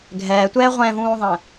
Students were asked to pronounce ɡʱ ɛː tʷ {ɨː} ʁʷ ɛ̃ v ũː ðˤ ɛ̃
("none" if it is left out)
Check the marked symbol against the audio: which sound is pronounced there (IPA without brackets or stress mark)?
ɛː